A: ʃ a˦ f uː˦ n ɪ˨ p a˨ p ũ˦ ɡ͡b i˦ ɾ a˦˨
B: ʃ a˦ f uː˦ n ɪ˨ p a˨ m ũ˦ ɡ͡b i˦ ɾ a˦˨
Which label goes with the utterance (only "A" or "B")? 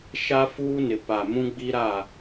B